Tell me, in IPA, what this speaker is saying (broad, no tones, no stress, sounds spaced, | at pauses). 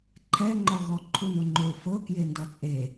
ǃʰ ɛ ŋ͡ǃ ɔ ɣ ɔ ǃʰ u n o ŋ͡ǃ o f ɤ k j e n d ɔ t͡sʼ e